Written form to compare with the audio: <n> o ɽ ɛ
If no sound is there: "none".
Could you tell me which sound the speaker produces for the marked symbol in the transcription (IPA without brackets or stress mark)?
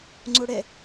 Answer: ŋ͡ǀ